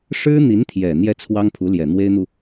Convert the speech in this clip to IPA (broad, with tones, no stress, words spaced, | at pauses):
ʂɻ̩˥n̪i˧˥nt̪ʰjɛ˨˩ n̪jɛ˥˩t͡sʰwɑ˥ŋ pʰu˧˥ljɛ˨˩ n̪we˥ɪ̯n̪u˨